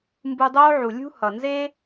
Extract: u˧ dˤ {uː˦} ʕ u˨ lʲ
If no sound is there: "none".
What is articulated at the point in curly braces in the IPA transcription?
oː˦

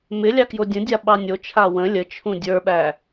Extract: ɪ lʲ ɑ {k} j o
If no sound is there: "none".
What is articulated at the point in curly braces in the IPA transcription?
k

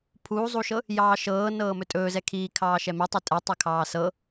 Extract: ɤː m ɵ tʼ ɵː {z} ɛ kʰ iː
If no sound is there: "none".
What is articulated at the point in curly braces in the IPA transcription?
z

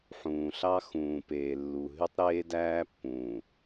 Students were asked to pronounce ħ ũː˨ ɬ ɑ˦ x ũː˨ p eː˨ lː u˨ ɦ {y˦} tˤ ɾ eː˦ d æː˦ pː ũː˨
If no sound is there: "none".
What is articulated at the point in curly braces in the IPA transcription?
y˦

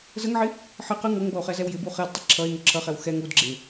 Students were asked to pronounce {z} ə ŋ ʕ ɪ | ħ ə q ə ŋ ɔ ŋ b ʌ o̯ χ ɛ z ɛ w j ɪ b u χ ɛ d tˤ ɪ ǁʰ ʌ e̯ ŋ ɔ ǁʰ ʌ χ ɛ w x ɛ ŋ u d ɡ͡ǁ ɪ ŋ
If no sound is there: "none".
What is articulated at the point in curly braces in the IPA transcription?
z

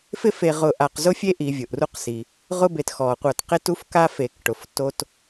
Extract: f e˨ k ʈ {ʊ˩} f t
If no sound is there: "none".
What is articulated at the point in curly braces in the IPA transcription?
ʊ˩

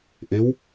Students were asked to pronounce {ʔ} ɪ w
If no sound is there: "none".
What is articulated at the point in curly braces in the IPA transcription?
ʔ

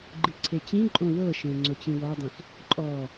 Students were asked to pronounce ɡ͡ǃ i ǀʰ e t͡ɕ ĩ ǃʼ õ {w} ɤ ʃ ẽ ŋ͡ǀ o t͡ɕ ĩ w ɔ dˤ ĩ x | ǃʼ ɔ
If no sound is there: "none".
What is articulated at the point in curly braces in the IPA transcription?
w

